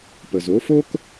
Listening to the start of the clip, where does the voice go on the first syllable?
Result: low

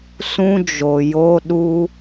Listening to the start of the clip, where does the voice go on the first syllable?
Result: high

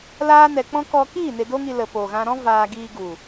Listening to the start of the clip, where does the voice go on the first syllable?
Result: high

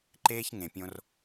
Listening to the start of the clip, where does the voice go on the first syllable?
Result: high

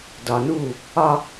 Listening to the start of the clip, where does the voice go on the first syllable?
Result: low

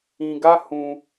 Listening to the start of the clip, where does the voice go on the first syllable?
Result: low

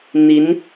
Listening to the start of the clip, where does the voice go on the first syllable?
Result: rising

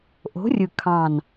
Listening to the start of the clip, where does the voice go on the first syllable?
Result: rising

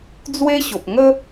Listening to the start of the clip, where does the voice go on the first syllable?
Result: high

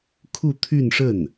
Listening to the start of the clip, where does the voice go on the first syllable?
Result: falling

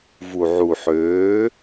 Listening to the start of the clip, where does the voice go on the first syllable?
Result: low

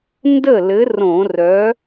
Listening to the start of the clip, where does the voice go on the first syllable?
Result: falling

